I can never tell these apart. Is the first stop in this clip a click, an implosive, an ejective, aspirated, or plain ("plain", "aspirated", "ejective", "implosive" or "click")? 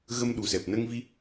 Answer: implosive